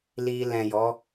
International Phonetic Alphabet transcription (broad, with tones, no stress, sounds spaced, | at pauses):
l i˧ l ɛ̃˨ j ɔ˨˦